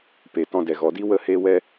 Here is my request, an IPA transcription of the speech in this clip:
p e˨ t ɔ̃˧ d ɛ˨ ɣ ɔ˨ d i˦ w ə˦˨ h eː˦ w ɛ˦

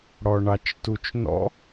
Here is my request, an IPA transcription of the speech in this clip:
ɽ ɔ ɳ ɑ t͡ʃ t u t͡ʃ n ɔ̰

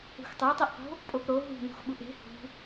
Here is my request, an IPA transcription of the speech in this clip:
ṳ x tˤ ɛ tˤ i ʔ q o̤ | pʼ o p ɾ o ɦ ṳ n ṳ x ɓ u ʔ e̤ h ṳ

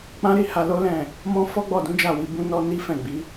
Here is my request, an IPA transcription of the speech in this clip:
k͡p ã˦ ɾ i˦ h a˧ l o˦ l ɛ̃˦˨ | m ɔ̃˦ f ɔ˦ ɡ͡b ɔ˦˨ d ũ˨˦ d͡ʒ a˦˨ w i˧ b ũ˦ n ɔ˦ n i˦ f ɛ̃˦˨ ɡ͡b i˨˦

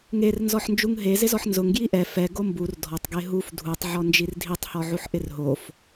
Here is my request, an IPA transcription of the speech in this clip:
ŋ e r n z ɔ ħ n d͡ʒ u ŋ ɦ e z ɪ z ɔ ħ n z ʊ ŋ ɡ j i ʔ ɛ f ɛ ɡ o m b u r dʱ ɔ tˤ ɡ e ɦ u f dʱ u tˤ ʕ ɔ n d͡ʒ i r dʱ i tˤ h ɔ ʕ u ħ ʔ ɪ r ɦ o f

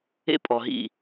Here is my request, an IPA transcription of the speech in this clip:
ḛ˦ pʼ ɔ˨ ɦ ḭ˦˨

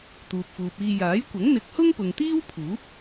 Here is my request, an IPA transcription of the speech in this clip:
t̪ uː˨ p̚ f uː˨ p̚ iː˧ j aː˨˥ j kʷ ɐ˨˥ ŋ n̪ ɪ˨˥ k̚ h ʊ˥ ŋ p ʊ˨ ŋ t̪ iː˥ w pʰ uː˨˥ p̚

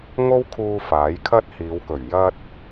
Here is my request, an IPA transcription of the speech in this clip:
ŋ o˥ w kʰ uː˧ f aː˨˥ j kʰ ɐ˥ t̚ h iː˨˧ w k ɵ˨˩ ɥ j ɐ˧ t̚

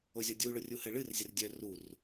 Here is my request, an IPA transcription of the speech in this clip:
o zʲ ɔ dʲ u ɭ ʊ rʲ u h ɘ ɭ ɨ r zʲ ə r dʲ œ r u r

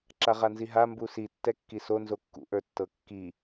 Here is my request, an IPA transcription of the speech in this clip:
ǁ a ʁ a n z i ɦ a m b u s i tː ɛ kː i s o n z o kː ṵ ʔ ə˞ tː ɤ kː i

